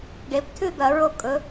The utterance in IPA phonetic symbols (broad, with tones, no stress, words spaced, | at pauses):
ɖe˩˧ptʰʉ˥˨d̪ɐ˧˩˧ ɹo˧kʼɵ˩˧